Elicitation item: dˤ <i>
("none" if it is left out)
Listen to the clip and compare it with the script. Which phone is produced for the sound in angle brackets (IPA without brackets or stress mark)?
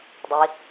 i